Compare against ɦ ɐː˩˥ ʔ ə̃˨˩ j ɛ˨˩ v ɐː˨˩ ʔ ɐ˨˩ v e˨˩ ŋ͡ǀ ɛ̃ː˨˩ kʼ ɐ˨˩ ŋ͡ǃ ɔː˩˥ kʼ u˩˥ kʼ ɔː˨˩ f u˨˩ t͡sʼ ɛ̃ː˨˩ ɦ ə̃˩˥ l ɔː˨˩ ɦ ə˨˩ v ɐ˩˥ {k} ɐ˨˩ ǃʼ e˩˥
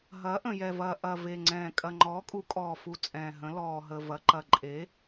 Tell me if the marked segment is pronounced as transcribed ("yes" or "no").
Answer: no